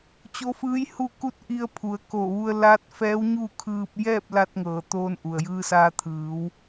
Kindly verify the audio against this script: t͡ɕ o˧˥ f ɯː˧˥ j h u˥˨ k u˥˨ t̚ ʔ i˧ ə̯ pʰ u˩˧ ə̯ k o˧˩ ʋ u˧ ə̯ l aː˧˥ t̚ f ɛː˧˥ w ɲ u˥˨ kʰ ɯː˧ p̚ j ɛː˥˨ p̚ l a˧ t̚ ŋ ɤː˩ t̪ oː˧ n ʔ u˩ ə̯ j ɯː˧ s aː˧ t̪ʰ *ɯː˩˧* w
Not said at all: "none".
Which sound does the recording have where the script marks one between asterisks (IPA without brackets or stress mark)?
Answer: ɯː˩˧